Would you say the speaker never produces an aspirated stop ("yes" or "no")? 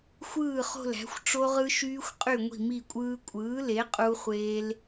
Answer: yes